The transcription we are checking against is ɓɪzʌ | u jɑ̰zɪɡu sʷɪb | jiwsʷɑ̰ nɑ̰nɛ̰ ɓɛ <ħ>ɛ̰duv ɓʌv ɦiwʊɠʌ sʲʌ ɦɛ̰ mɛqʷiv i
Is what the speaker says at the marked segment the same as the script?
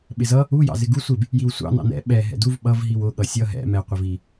no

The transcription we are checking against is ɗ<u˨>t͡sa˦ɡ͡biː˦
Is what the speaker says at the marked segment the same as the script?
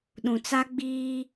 no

